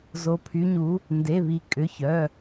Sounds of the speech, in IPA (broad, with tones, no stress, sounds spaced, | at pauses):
z o˧˥ pʰ y˧˥ ɲ u˧˥ | n d e˧˥˧ β i˧˥ kʼ ʏ˧˥˧ ç œ˧˥˧